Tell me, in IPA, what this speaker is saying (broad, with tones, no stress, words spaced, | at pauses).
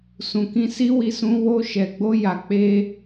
sũ˨kĩ˧si˦wi˧ sũ˦ wo˧ʃɛ˨ɡ͡bo˧ ja˨k͡pe˧